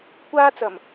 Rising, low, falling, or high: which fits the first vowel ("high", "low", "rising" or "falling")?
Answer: high